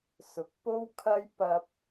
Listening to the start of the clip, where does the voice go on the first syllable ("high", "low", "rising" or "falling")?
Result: low